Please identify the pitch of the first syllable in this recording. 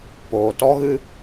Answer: low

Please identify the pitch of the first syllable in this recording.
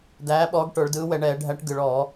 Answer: rising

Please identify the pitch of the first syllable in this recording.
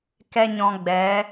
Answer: high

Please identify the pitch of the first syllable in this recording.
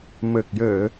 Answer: low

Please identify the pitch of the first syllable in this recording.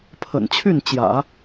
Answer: low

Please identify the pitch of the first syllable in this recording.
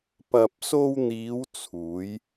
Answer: low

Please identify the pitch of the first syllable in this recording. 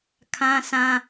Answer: high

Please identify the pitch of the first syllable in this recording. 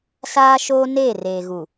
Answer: high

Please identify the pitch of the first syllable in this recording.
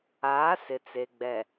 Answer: rising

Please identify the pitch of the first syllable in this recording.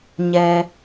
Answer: low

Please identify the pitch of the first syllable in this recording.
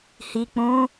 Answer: low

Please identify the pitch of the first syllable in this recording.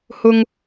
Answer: high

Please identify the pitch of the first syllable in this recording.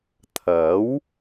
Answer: rising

